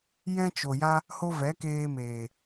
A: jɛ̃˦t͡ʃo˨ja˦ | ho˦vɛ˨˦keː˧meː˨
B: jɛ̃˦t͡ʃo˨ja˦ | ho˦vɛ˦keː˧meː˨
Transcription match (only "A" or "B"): A